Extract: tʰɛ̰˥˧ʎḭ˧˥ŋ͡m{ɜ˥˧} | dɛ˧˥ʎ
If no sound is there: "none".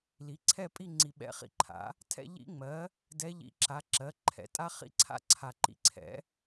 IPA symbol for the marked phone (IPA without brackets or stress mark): ɜ˩˥